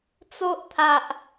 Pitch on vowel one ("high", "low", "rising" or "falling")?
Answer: high